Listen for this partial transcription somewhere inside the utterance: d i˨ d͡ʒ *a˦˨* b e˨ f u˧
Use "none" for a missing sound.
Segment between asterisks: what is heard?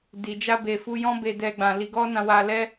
a˧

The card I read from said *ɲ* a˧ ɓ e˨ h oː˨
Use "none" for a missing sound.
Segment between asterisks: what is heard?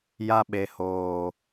j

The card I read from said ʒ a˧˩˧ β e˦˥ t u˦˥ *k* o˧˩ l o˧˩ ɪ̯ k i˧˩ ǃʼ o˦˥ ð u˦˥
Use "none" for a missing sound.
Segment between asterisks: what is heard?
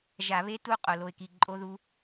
qʼ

